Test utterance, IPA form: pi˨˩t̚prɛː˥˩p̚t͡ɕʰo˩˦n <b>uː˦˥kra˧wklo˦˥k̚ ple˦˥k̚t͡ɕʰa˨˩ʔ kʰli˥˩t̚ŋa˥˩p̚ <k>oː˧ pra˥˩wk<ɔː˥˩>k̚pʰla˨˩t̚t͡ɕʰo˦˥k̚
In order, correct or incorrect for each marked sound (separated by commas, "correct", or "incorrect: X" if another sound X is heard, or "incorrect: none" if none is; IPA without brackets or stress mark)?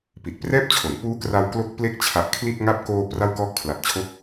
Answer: incorrect: p, correct, correct